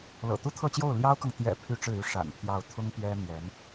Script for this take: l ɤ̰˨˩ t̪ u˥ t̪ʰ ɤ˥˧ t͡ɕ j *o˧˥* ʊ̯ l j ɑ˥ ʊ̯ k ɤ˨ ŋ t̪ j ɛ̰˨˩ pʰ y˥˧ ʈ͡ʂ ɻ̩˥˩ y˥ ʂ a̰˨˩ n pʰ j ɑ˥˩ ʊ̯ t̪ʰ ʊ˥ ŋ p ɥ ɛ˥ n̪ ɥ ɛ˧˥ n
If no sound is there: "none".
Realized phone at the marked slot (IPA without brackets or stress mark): o˥˩